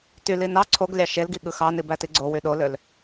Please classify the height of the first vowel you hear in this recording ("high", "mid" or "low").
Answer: high